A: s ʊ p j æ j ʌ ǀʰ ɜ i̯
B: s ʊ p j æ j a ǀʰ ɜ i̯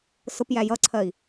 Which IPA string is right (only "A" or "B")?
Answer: A